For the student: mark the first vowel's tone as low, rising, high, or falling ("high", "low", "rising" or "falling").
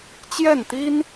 falling